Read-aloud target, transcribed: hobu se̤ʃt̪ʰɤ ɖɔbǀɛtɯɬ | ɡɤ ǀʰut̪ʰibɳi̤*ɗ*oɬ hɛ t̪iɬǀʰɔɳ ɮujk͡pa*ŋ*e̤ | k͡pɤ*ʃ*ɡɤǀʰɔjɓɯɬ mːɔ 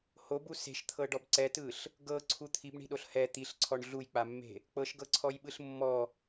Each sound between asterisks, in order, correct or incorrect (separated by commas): correct, incorrect, correct